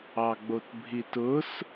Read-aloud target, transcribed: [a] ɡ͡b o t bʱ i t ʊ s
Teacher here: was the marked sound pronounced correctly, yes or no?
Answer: no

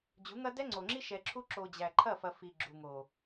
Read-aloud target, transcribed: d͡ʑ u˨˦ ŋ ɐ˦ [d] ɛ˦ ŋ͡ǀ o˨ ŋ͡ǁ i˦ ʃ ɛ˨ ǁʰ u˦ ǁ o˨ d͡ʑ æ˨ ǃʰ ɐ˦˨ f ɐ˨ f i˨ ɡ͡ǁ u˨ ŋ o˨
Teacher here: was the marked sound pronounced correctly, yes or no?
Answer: yes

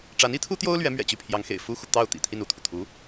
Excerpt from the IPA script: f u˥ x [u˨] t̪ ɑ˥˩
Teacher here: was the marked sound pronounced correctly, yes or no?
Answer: yes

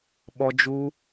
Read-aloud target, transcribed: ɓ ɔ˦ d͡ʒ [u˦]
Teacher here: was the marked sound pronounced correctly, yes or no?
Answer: yes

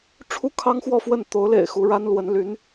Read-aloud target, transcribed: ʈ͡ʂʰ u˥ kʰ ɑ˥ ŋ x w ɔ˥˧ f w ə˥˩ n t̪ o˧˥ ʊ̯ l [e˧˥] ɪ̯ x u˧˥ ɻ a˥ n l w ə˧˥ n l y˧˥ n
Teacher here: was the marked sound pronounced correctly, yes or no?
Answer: no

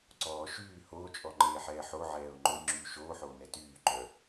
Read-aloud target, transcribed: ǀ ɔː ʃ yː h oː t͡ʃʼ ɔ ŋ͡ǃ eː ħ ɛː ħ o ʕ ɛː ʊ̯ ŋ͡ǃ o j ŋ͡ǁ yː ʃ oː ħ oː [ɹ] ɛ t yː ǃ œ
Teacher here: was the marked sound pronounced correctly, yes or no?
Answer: no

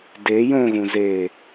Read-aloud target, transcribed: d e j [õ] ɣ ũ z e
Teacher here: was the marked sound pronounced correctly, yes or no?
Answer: yes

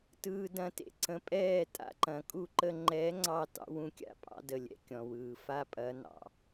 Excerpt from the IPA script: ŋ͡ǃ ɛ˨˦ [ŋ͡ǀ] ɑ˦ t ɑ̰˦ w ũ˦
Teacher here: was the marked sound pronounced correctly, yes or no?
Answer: yes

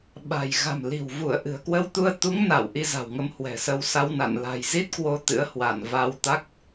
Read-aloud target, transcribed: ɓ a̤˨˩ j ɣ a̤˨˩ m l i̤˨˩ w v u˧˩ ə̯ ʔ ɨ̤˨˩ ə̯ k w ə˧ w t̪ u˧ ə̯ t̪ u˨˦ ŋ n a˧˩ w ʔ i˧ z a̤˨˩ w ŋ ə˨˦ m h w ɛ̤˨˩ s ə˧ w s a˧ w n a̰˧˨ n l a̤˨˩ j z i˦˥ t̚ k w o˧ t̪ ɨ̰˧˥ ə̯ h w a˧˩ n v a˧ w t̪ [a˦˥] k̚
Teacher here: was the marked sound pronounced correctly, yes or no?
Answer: yes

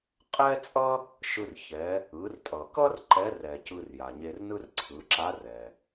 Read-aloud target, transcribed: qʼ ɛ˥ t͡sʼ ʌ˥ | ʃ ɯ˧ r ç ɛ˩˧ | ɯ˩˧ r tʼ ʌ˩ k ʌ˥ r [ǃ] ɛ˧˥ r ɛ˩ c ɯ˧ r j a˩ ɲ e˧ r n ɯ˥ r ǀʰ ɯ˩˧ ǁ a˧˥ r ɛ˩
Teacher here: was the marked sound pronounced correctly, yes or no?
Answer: yes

